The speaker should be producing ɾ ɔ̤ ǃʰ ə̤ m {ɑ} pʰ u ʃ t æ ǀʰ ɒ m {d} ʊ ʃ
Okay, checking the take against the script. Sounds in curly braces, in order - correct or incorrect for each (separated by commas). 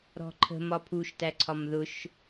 incorrect, incorrect